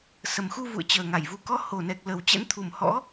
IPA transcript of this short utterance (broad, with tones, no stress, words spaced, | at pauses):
sə˨˩mxu˧ vṵ˧˨ə̯t͡ɕəː˨˩ŋa˧˩jvu˨˦ kɔ˨˦ho˨˩nɛ˨˩k̚ lə˨˩wt͡ɕɛ̰˧˥nt̪ʰu˨˩m hɔ̰˧˥